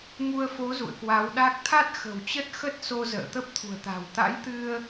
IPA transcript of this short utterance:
ŋ u˧ ə̯ f o˨˦ z ṵ˧˨ ə̯ k w a˨˦ w ɗ a˦˥ k̚ t̪ʰ a˦˥ t̚ x ə̤˨˩ w t͡ɕ ə˦˥ t̚ x ə˦˥ t̚ s o˧ z ə̰ː˧˨ t̪ ə˦˥ p̚ t̪ʰ ṳ˨˩ ə̯ t̪ a̤˨˩ w t̪ a̰˧˥ j t̪ ɨ˧ ə̯

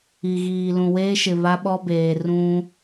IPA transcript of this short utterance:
i˨ ɣ iː˨ l ũ˨ w eː˦ ʃ ɪ˨ β a˦ ɓ ɔ˦ b eː˨ r ũ˦

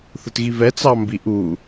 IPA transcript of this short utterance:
θ ʊ t ɣ i v ɛ t͡s ɑ m b i ʔ u

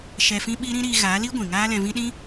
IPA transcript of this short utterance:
ʃ ɛ˧ f ĩ˦ ɓ i˦ ɾ ĩ˦ ɾ iː˧ ɣ aː˨˦ l iː˦ ɡʷ ĩ˨ ŋ aː˦ l ɛ̃˧ v ĩ˦ ɗ ĩ˦

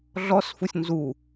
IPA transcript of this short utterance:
ɮ ɔ s f u sʲ n z u

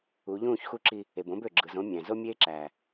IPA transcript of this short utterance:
u˨˦ ʎ ũː˦˨ ç x u˦ ǁ i˦ | e˨ b õ˦ b ø˨ ɡ͡ǁ ɯ˨ z õ˦ mʲ æ̃˨ z o˦ mʲ eː˦ ǁ æː˨

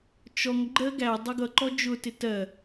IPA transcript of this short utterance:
t͡ʃ ɔ ŋ ɡ͡ǃ ɜ ɡ æ dˤ ʌ ɡ ʌ ǃ ɔ d͡ʒ ʊ t ɪ t ɜ

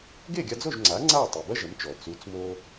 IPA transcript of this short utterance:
ɡ e˥˩ ɡʲ a˧ d͡z o˥˩ ʒ ŋ͡ǀ a˩˥ ŋ͡ǀ aː˥˩ tˤ ɨ˩ b ɐ˥ ʒ ɐ˩˥ m t͡ʃ ɔ˩ t͡s u˩˥ t͡s m o˧

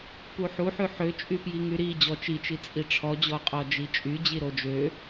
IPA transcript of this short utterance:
p u ħ u ħ ʉ ħ ø t͡ʃʼ y p j i ŋ y ɾ i d͡ʑ ɔ t͡ʃ i t͡ʃ i t͡sʼ i ʈ͡ʂʰ ɔ d͡ʑ ɔ qʼ ɔ d͡ʒ i t͡ʃʼ y d͡ʑ i ɾ o d͡ʒ ø

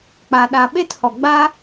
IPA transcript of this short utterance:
k͡p a˨ ɗ a˨ ɓ e˦ t h ɔ˨ ɡ͡b a˦

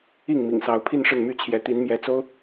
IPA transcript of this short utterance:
i˥˨ ŋ m ḭ˨˩ ŋ s ɑ˨˦ ʊ̯ pʰ i˥˨ n ʂ ə˥˨ n m y˥˨ t͡ɕʰ j ɛ˨˦ t̪ i˨˦ n m j ɛ˨˦ t͡s o˦ ʊ̯

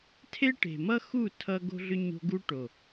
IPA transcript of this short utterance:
tʰ e˦ ʈ e̤˨ m ʌ˦ x u˦˨ tʰ ʌ˦ ɡ o̤˦ ɮ ʏ˦ ɲ o̤˦ ɡ u˦ ʈ o˨

